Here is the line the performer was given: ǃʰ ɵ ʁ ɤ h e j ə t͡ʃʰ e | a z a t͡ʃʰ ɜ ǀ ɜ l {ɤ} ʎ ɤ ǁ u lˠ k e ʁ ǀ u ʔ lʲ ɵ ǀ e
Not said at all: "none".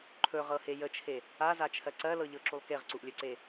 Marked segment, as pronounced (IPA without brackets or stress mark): ɤ